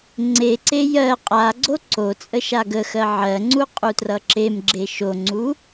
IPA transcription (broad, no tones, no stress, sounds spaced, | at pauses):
ŋ͡ǀ e ǀ e j ɜ qʼ a ɡ͡ǀ o ǀ o t͡sʼ ə ʃ a ɡ ə x ɜ ʕ ɜ ŋ͡ǀ u qʼ u t r ʌ ǁ e m ɡ͡ǁ e ʃ o ŋ͡ǀ u